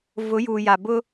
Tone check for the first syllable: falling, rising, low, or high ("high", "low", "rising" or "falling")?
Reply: rising